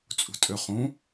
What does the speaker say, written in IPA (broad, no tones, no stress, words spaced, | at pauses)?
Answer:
t͡sʼṳtʼøχũ